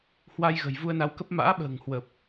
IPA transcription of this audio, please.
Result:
h w a˧ j ɣ ə̤˨˩ j v u˧ ə̯ n a˨˦ w k ə˦˥ p̚ m a̰ː˧˥ ɓ ə̤ː˨˩ ŋ h w ə˨˩ p̚

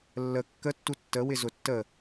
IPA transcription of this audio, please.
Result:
lː ə kː ə tː u tː ə w ɪ z ʊ tː ə

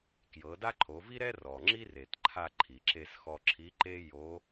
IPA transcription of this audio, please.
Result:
k j ɤ˩˧ d a˥ ǃʰ o˩˧ v i˥ ɾ ɛ˥ r ɔ˩ ŋ͡ǁ i˥ r e˩ t ǃʰ a˧ ǃʰ i˩ ǁ e˧ s x ɔ˧ ǁʰ i˧˥ ǃ e˥ j o˧˥

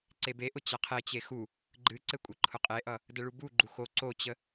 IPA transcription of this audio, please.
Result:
ǀ e b e ʔ ʊ t͡ɕ a qʰ e t͡ɕ e x u | ɡ͡ǃ ɨ ǀ ɘ kʷʼ ɘ ǃʰ ʊ qʼ e ʔ ʌ | d ə ɭ u b u ɡ͡ǃ u x o ǀ o t͡ɕ ə

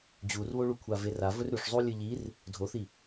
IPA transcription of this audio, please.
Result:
d͡ʑ u r β o ɭ u kʷʰ a v e r a v ɵ r ɾ ʉ ʂ zˤ u lʲ ɨ ʎ i r | dʱ o θ i

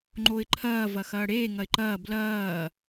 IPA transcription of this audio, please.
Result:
ŋ͡ǃ o ɪ̯ ǃʰ ɐː v ɐ x ɐː ɽ eː ŋ ɐ ɪ̯ ǃ ɐː b l ɐː

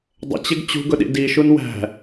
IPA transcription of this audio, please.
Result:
dˤ ə̰ t͡ɕ ɪ ɡ t͡ɕ ṳ ɡ ʊ ɗ ḭ d i ʃ u n w æ̤

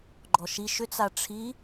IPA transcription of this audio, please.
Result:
ɡ͡ǃ ɔ ʃ i ʃ ʏ t͡s a ʈ͡ʂʰ i

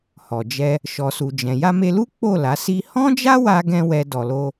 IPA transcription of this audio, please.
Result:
h ɔ˨ d͡ʒ ɛ˧ | ʃ ɔ˨ s u˨ d͡ʒ ɛ̃˨ j a˧ m e˧ l u˦ k͡p o˦˨ l a˨˦ s i˦ h ɔ̃˦ d͡ʒ a˦ w a˧ ɡ ɛ̃˧ w ɛ˦ d ɔ˧ l o˦

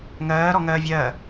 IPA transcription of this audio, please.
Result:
ŋ ɜː ɾ ɔ ŋ ɜː vʲ ɜ

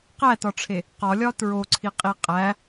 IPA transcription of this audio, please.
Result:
q æ t ɒ ʈ͡ʂʰ e | q ɒ lʲ ɒ t ɹ o ǀʰ i qʼ i qʼ æ

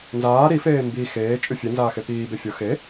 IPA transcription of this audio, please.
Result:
n z aː ɾ i f eː m b i x eː t͡ʃʼ y fʲ e n z aː x e p iː b e fʲ ʊ x e

